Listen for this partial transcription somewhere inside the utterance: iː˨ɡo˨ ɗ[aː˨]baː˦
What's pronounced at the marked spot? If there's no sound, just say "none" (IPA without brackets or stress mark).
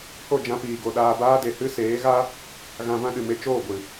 aː˧